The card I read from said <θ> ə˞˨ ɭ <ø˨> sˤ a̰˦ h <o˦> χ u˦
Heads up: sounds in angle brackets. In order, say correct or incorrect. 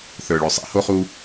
correct, correct, correct

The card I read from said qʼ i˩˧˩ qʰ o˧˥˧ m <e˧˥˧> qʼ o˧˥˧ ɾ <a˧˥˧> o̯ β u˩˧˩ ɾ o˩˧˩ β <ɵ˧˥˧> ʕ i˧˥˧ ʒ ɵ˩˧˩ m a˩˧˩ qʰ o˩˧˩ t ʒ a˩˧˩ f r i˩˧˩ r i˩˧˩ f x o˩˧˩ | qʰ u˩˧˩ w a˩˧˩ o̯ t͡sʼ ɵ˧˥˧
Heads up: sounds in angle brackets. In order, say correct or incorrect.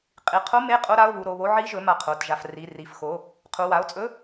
correct, correct, incorrect: o˧˥˧

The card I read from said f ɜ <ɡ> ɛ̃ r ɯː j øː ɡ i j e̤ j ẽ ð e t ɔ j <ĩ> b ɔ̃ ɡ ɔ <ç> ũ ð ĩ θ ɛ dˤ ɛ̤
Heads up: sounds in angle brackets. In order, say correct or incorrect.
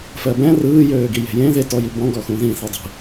incorrect: b, incorrect: i, incorrect: x

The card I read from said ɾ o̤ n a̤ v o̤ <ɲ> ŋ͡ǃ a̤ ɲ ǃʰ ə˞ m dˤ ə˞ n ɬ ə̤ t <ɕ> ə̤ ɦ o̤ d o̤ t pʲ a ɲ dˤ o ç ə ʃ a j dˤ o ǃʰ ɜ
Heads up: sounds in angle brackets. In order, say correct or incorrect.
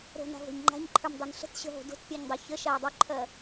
correct, correct

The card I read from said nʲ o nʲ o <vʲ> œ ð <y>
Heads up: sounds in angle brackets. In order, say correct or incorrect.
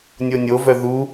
incorrect: v, incorrect: u

